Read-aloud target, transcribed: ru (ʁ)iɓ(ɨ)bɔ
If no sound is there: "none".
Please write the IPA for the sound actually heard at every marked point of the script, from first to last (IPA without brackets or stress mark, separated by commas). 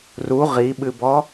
ʁ, ɨ